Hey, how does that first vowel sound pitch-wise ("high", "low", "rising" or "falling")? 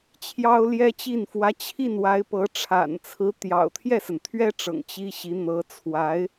high